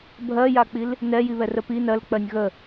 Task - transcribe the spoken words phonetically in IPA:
bʱɜjak͡pil | nɛjiβɛrə pi nɜlk͡pɜnʲ ɣə

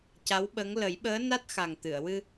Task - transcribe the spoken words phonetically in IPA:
ca˧˥wɓə˧˥ŋ lə˨˩˦jɓəː˧˥ na˦˥t̚xa˨˩ŋ t̪ɨ˨˩˨ə̯wɨ˧

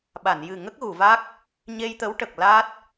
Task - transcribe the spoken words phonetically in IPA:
ɓa˨˩˨njɨ˨˩ ŋə˦˥k̚ɣu˨˩˨va˦˥k̚ | ɲe˧jt̪ə˧˥wʈə˨˩k̚ la˦˥t̚

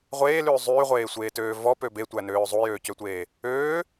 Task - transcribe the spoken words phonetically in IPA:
ʁʷeːlʉː zˤyːʁʷeːsʷeːtøː vɔpø betʷænøː zˤujøːcøtʷeː | øː

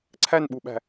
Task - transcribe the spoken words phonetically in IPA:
ǀʰænɓuɓæ̤

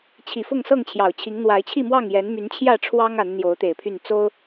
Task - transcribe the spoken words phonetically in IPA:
t͡ɕʰi˨˩ fʊ˥˨ŋsɤ˥˨ŋt͡ɕʰjɑ˨˩ʊ̯t͡ɕʰi˨˦ŋ n̪wa˨˦ɪ̯t͡ɕʰi˥˨mwɑ˥˨ŋjɛ˨˦n my˨˦nt͡ɕʰjä˥˨ʈ͡ʂʰwɑ˦ŋ a˨˦n n̪jo˨˦ʊ̯t̪e˨˩ɪ̯ pʰy˥˨n t͡so˦ʊ̯

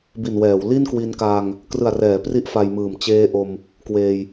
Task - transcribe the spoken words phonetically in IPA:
bi˨˩nwɛː˩˦w li˥˩nkwi˧nkaː˧ŋ | krɯ˨˩a̯rɛː˩˦pri˦˥ʔ fa˧jmɯː˨˩m t͡ɕeː˦˥ʔo˧m | kweː˧j

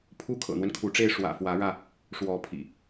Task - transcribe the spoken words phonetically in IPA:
pʰu˦ kʰɤ̰˨˩n̪wə˦n kʰu˨˦ʈ͡ʂe˥˨ɪ̯ ʂwä̰˨˩ fwä˨˦ɻä˧ | ʂwɔ˨˦pʰḭ˨˩

